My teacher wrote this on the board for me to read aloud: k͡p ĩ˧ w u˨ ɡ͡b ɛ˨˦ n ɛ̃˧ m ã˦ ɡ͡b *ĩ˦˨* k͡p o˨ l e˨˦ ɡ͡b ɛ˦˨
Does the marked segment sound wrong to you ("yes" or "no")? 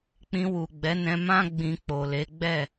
yes